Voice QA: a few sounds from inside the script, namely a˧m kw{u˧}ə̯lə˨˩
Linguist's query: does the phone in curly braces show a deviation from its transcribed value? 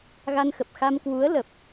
yes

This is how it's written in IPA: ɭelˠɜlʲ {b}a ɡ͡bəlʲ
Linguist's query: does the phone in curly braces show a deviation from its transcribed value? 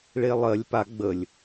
yes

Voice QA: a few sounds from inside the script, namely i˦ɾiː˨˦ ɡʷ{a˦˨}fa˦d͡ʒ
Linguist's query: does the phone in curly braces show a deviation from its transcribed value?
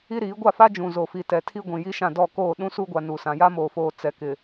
no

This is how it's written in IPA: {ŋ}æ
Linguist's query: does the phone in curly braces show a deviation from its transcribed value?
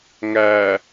no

